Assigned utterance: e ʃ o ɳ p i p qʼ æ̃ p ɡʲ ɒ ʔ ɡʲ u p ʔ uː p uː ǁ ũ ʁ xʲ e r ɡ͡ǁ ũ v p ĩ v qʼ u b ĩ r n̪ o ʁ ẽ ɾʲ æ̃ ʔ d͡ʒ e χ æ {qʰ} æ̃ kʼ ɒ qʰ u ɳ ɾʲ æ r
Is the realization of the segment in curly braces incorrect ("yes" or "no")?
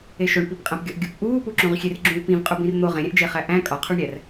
yes